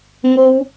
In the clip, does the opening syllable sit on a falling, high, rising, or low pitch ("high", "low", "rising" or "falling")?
high